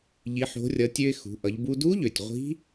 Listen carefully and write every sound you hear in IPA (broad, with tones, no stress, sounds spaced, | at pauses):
ʎ i˩˧ ħ o̤˩˧ rʲ ʌ˩˧ tʲ ø˧ ɪ̯ x ṳ˩˧ ʔ ʌ˩˧ ʎ b u˧ d u˧˥ ʎ ø˩ tʲ ʁʷ i̤˧˥